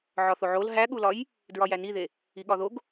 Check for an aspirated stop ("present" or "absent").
absent